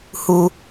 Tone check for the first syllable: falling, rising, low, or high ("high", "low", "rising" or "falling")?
high